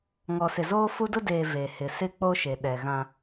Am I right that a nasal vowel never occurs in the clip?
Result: no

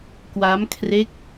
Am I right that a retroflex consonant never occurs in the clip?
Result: yes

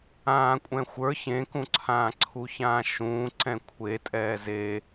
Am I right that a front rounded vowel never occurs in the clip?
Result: yes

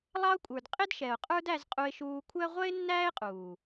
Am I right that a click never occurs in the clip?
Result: yes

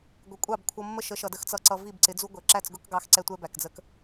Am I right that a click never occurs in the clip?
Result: no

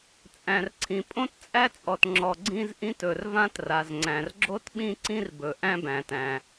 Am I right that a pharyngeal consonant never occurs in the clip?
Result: yes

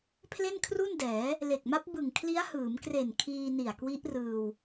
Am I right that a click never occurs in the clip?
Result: yes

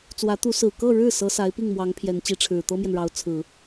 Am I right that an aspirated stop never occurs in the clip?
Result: no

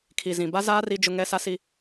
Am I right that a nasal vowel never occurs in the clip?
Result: no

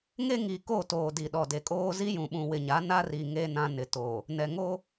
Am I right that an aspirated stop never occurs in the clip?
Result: yes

